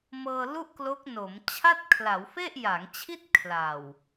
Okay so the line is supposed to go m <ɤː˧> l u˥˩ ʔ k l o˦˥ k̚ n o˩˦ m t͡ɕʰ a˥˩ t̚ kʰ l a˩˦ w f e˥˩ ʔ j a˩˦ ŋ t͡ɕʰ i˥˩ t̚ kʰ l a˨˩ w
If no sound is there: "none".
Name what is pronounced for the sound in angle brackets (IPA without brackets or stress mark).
ɤː˧